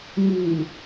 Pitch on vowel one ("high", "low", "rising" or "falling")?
low